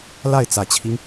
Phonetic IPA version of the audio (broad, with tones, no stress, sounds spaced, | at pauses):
l a˥˩ ɪ̯ t͡s ä˨˩ t͡ɕʰ i˦ ŋ